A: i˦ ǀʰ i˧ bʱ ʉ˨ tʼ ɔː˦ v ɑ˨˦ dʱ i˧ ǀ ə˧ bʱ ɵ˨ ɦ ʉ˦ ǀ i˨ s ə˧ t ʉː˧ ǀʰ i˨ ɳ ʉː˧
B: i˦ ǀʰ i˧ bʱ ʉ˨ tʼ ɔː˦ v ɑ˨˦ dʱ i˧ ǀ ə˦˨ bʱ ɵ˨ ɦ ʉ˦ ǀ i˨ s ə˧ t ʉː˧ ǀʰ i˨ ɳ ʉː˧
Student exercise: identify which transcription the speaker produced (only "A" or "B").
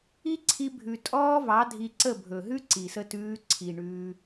B